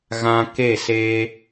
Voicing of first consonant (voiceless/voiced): voiced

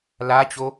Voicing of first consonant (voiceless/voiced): voiced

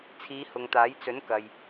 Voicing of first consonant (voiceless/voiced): voiceless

